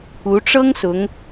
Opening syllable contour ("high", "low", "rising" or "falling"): rising